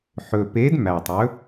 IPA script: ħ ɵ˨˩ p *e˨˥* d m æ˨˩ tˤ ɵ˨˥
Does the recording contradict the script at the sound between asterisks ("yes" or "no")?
no